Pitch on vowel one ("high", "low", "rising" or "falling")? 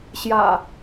low